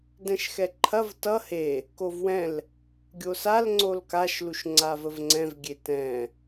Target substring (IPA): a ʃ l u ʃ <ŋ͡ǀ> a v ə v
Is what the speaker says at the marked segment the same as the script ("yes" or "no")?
yes